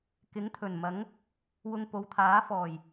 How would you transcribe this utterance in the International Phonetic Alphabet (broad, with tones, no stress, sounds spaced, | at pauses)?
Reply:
k ɪ˨˥ ŋ t̪ʰ ɵ˨˩ n m ɐ˨˥ ŋ | w ʊ˧ ŋ p o˨˧ w t̪ʰ aː˨˥ f ɔː˨˩ j